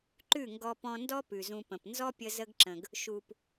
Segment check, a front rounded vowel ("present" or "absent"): absent